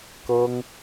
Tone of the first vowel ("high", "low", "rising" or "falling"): high